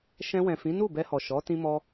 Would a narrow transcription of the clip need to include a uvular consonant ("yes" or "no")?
no